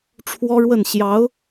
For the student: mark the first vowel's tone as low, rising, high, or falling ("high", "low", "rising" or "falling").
high